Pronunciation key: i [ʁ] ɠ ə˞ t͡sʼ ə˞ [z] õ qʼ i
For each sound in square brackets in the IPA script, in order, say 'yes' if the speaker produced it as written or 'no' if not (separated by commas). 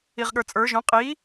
yes, no